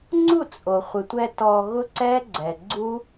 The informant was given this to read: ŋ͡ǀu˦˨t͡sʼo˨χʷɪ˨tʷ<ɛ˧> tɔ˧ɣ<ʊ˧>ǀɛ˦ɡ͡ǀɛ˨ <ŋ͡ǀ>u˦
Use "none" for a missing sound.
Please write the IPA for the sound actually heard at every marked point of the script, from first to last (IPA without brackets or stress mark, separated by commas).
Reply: ɛ˧, ʊ˦, ɡ͡ǀ